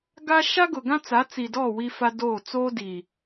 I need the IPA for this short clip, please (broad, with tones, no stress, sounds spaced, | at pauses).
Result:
ɡ a˦ ʃ a˦ ɡ ʊ˨ ɡ ã˦ t͡s a˨˦ t͡s i˨ d ɔ˦˨ w i˦ f a˦ d oː˦˨ t͡s oː˦ d i˨